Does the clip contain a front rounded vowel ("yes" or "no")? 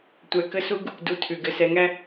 no